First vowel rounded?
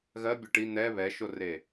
no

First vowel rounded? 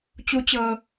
yes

